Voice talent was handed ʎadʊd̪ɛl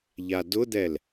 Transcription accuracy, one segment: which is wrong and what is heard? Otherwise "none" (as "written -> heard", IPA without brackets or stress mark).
none